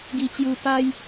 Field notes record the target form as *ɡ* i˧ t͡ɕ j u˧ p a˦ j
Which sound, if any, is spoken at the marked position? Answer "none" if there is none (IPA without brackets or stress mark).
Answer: ɡ